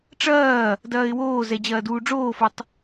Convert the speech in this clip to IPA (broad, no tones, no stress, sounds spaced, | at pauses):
ʈ͡ʂ ɐː | d ɐː ɪ̯ w oː z ɛ d͡ʑ ɐː d uː ɖ͡ʐ oː f ɔ tˤ